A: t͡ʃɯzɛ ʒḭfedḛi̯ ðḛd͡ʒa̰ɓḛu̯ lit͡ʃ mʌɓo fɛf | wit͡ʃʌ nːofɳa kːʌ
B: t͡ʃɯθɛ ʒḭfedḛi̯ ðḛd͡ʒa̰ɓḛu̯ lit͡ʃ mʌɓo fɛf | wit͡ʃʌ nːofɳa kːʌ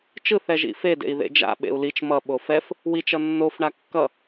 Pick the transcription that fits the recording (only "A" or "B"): B